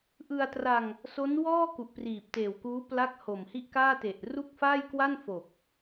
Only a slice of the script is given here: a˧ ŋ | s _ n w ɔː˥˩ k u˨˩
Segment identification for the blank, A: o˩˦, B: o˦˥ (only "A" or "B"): B